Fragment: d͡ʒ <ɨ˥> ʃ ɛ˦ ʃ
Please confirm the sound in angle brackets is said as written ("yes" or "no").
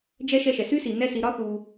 no